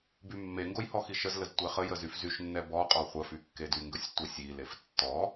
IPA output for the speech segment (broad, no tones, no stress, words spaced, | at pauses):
bymːeŋɡoj hɔxiʃəzləz tʷɛχəjə zyfzyʃnːɛ bɔqʼɔ χʷəfy kːedyŋɡəsʲ tʷesʲilef tːɔ